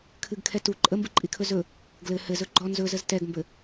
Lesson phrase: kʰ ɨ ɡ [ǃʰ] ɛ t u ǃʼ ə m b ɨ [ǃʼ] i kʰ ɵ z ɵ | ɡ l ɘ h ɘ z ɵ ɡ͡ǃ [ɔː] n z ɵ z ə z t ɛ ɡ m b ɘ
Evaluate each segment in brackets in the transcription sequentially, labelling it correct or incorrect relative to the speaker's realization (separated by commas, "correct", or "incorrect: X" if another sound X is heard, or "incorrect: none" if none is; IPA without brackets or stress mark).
incorrect: kʰ, correct, incorrect: ɔ